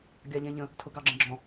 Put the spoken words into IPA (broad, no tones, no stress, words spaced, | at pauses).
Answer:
ɡʲɑʎɛ̃ʎə̃ | tʰʊɡɑɡ͡ǁə̃ɡ͡ǁɔ̃